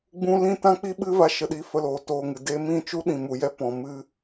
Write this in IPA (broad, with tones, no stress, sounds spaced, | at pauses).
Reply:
ɡ͡b ũ˦ l ĩ˦ t ã˦ k͡p i˦ ɓ ɨ˦ v a˦ ʃ ə˧ ɗ i˧ f ə˧ l oː˨ t oː˨ ŋ ɨ˨ d eː˧ m ĩ˦˨ t͡ʃ u˦ ɗ ĩ˨ m u˨ j ɛ˦ p ɔ̃˨ m ɨ˧